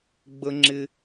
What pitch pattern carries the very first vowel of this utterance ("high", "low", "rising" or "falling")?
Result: high